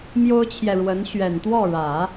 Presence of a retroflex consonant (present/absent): present